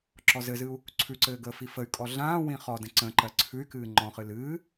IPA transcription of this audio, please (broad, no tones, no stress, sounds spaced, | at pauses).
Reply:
ǁ ɔ z ɘ z ɨ u̯ | ǀʰ ʉ ǀ ɘː ɡ əː f i f ə y̯ kʼ ɔ ɮ ãː w ĩ χ ɔ d ə̃ ǀ ə̃ ǃ ɜ ǀʰ ʉ y̯ k ɨː ŋ͡ǃ ɔ̃ χ ɨ l ɨː